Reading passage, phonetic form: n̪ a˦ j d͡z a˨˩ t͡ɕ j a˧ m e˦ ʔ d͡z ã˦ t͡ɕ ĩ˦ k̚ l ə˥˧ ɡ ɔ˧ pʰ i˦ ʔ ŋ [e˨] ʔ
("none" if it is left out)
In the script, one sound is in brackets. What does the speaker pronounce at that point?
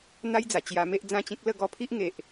e˨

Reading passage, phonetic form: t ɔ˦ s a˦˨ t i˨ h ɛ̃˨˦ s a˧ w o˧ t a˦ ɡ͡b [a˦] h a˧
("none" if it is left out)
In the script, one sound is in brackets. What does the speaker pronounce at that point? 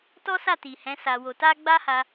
a˦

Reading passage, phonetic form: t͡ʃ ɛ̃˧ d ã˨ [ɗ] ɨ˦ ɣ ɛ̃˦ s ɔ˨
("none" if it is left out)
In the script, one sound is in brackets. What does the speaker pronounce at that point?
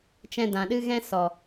ɗ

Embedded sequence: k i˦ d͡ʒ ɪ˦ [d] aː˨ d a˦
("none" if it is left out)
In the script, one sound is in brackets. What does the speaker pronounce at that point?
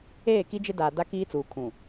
d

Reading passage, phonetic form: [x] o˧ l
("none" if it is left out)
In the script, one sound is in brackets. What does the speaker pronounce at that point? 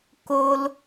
k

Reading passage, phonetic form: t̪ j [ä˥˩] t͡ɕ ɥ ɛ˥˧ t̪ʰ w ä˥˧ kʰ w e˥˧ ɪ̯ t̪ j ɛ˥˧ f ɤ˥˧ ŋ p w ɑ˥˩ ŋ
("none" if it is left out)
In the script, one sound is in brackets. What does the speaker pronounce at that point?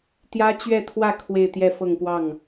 ä˥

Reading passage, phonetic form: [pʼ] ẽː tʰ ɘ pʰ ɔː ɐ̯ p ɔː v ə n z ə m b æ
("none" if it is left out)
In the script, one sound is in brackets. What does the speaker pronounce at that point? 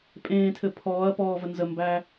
pʼ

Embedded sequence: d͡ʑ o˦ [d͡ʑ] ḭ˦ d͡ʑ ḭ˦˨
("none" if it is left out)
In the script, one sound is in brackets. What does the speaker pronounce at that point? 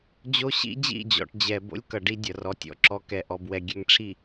ɕ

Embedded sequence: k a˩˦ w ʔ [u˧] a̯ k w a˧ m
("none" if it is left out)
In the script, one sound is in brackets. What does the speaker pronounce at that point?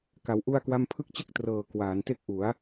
u˧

